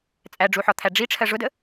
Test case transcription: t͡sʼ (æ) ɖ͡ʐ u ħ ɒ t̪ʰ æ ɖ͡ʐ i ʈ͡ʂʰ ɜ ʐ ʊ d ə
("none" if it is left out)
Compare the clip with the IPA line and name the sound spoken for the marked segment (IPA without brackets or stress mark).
æ